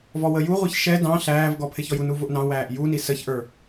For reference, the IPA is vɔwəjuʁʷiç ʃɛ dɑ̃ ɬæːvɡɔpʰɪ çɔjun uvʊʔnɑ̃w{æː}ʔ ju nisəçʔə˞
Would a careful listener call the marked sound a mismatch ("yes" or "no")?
no